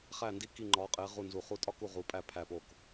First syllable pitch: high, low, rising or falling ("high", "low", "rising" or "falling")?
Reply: falling